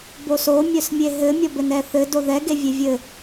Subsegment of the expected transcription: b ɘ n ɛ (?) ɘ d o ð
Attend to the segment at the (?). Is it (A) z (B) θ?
B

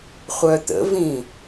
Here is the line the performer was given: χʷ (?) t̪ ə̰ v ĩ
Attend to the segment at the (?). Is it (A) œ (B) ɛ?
A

